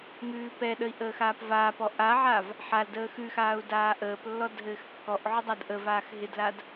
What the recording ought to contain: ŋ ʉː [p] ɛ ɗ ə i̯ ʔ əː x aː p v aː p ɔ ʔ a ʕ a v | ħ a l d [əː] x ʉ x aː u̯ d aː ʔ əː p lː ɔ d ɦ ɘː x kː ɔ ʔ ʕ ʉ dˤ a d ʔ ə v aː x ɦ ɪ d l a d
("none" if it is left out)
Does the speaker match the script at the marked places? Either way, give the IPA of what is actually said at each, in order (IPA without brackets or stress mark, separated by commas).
p, əː